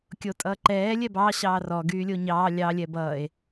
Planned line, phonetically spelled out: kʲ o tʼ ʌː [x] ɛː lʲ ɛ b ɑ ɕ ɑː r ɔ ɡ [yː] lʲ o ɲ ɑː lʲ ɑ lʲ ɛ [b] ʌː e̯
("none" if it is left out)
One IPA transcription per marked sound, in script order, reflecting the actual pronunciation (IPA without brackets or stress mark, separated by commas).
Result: ǃ, yː, b